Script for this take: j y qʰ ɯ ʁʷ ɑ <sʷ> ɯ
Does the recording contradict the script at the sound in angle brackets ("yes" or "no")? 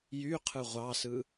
yes